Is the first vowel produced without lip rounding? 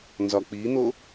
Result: no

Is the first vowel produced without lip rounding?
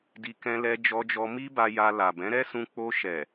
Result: yes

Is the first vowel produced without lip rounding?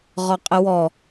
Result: no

